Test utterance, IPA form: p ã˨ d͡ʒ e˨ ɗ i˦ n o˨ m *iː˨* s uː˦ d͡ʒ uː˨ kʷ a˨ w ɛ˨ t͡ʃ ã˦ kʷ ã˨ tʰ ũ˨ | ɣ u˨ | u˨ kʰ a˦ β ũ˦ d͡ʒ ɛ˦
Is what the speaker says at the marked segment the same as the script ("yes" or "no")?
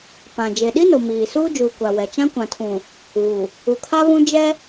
yes